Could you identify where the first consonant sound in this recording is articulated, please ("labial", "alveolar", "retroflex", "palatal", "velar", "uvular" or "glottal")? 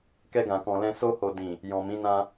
velar